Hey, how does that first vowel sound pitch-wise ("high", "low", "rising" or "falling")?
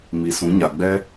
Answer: low